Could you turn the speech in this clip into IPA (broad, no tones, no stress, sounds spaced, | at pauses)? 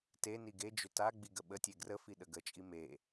t e n i ɡ e d͡ʒ ʏ t a ɡ͡b i ɡ ə ɓ ə tʲ e ɡ r ə f i ɗ ə ɡ ə t͡ʃʼ i m e